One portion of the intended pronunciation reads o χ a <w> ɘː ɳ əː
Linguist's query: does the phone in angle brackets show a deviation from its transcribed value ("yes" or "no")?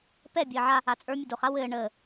no